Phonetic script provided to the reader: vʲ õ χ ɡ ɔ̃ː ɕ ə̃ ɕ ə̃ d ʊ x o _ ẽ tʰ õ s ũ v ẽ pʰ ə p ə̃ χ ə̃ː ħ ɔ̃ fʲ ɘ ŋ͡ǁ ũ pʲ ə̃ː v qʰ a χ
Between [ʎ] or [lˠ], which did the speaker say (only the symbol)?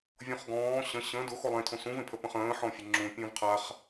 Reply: lˠ